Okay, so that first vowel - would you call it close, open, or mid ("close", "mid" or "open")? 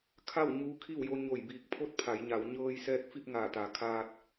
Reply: open